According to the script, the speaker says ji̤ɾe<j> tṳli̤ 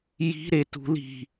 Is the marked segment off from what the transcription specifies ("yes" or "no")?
yes